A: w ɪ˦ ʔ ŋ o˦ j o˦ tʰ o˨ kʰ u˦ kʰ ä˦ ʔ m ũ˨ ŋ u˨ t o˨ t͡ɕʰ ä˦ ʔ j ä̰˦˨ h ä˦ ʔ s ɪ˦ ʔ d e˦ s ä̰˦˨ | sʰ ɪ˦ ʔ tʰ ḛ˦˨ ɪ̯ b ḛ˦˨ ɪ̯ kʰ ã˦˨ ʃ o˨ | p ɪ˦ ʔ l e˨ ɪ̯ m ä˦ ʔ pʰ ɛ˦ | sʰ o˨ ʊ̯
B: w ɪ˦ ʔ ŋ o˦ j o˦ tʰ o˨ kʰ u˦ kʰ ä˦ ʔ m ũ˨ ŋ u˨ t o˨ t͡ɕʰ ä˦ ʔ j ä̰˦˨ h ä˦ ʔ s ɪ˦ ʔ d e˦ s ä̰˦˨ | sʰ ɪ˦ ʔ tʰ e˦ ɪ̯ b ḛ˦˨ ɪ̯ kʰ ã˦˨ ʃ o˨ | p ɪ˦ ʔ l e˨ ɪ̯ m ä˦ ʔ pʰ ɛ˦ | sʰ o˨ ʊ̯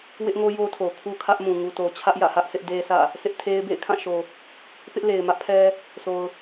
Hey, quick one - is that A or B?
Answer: B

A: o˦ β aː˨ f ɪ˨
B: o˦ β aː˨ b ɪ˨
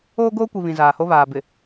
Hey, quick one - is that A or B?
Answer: B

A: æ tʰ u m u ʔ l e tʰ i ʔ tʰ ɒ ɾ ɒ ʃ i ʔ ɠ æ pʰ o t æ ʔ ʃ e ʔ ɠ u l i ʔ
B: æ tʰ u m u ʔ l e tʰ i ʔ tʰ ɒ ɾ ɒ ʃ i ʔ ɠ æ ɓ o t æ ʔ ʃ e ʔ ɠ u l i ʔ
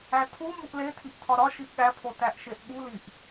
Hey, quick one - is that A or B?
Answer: A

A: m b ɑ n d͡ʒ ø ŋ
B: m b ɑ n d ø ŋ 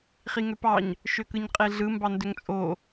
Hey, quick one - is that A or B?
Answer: B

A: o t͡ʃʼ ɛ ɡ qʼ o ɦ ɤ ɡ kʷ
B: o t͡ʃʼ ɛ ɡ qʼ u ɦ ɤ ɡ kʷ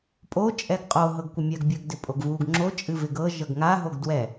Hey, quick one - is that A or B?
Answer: A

